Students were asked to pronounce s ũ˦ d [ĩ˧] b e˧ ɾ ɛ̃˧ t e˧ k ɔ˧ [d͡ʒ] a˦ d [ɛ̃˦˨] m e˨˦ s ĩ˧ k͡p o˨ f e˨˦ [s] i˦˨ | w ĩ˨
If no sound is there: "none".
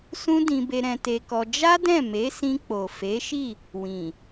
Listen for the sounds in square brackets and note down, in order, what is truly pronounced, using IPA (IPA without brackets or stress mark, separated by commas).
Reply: ĩ˧, d͡ʒ, ɛ̃˦˨, ʃ